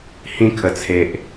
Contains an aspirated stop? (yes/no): yes